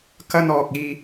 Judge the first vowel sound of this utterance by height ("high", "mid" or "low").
low